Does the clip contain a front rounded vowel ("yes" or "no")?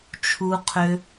yes